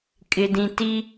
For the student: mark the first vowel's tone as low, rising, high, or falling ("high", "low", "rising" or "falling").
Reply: low